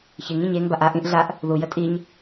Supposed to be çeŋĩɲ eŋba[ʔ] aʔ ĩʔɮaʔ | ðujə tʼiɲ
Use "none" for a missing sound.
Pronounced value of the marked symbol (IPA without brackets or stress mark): ʔ